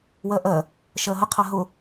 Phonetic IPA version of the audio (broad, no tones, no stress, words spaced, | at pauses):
wɜʔɜ | ʃɜɦə qʰaɦʊ